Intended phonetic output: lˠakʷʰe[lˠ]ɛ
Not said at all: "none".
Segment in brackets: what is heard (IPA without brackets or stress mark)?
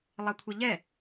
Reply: ʎ